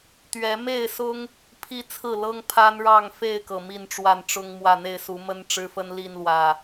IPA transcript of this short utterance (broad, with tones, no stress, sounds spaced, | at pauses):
t̪ ɥ ɛ˨˦ m e˥˨ ɪ̯ s ʊ˦ ŋ | pʰ i˦ t͡sʰ ɹ̩˥˨ l ɤ˦ ŋ pʰ a˦ n ɻ ɑ˥˨ ŋ f e˥˨ ɪ̯ k ɤ˩ m i˥˨ n ʈ͡ʂ w a˥˨ n ʈ͡ʂ ʊ˦ ŋ m w ä˥˨ n̪ e˥˨ ɪ̯ s u˨˦ m ə˦ n ʈ͡ʂ ɻ̩˦ f ə˦ n l i˥˨ n l w ä˨˩